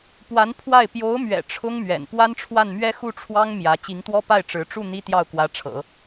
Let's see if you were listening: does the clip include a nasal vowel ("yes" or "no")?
no